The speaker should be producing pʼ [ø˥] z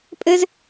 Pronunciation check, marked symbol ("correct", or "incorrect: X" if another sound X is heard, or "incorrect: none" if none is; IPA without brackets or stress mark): incorrect: ɘ˥